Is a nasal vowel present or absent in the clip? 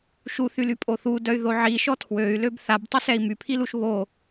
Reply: absent